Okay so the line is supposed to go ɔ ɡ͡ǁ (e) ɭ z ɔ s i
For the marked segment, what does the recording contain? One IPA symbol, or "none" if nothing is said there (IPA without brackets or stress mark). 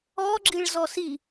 i